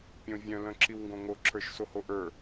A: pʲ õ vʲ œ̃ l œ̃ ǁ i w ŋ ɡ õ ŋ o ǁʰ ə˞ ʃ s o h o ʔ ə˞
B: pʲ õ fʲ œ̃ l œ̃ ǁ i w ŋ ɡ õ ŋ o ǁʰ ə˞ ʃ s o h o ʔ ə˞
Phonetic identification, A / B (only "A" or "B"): A